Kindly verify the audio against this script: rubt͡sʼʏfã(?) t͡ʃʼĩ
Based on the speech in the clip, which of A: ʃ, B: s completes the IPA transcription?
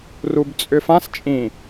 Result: B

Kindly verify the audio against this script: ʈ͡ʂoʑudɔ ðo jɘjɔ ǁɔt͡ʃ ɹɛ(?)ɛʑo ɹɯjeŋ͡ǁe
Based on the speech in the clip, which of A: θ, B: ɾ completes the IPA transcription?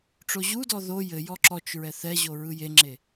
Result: A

